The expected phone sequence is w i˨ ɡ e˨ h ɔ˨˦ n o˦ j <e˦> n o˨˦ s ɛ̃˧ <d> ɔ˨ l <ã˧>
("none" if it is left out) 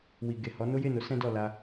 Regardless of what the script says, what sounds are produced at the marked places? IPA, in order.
e˦˨, d, a˧

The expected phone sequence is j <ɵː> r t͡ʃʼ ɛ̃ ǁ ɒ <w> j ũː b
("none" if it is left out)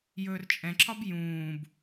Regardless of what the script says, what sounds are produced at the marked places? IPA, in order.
ɵː, b

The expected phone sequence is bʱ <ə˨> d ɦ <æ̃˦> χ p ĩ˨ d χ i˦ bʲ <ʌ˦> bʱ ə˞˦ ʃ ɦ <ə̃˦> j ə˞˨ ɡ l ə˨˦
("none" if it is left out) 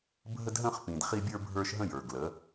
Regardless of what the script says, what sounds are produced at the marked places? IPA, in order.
ə˦, ə̃˦, ə˞˦, ə̃˦

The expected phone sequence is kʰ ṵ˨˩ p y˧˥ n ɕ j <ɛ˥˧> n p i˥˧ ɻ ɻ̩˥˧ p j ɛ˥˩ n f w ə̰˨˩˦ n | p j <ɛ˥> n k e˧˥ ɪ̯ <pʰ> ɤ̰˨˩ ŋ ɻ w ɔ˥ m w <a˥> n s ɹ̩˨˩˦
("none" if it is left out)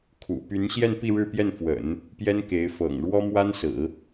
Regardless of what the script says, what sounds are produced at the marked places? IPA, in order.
ɛ˥˧, ɛ˥, f, a˥

